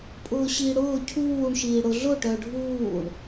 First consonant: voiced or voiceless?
voiceless